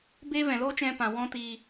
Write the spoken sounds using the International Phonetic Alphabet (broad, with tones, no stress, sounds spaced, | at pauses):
b e˦ v ɛ̃˨ l oː˦ t͡ʃ ɛ̃˧ p ã˨ w ɔ̃˦ t iː˧